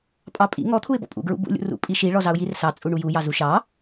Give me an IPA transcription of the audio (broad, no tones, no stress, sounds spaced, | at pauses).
pʼ ɑ pʼ ḭ ŋ ɔ t̪ʰ u ɪ̯ b ɔ̰ pʼ ṵ ɡ ɹ ṵ b ṵ lʲ ṵ r ṵ pʼ i ʃ i ɭ ɔ z ɑ ʊ̯ j i r s ɑ t͡sʼ u ɳ u j u j ɑ z u ʃ ɑ